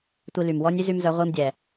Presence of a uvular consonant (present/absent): present